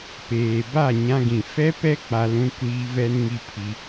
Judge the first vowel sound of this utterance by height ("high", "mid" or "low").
mid